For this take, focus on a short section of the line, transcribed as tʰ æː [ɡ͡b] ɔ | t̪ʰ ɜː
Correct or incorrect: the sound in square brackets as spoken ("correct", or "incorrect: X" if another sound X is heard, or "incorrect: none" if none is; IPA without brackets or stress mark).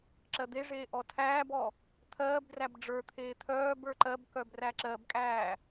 incorrect: b